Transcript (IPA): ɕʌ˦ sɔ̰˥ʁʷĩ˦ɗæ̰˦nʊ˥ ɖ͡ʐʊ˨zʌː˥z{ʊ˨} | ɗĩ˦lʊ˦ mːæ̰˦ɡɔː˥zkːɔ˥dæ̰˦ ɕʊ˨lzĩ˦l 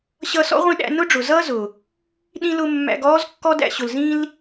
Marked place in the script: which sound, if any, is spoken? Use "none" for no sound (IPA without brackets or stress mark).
ʊ˩